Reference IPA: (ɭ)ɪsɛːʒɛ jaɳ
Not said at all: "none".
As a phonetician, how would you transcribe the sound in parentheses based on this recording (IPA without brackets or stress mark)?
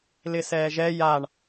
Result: l